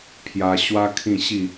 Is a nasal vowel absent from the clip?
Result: no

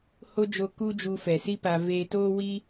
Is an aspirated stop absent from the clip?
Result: yes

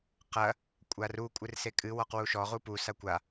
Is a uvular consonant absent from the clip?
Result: no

